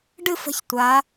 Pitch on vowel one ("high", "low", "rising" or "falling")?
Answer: falling